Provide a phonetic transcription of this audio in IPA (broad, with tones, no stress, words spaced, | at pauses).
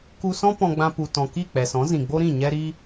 ku˧sɔ̃˦ pɔ̃˧ɡ͡bã˧ pu˨tɔ̃˨ki˦˨ k͡pɛ˨sɔ̃˨˦ zĩ˨ ɡ͡bo˦ɾĩ˦˨ ɲɛ˦ɾi˦